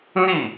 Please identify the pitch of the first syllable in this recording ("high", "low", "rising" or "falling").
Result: falling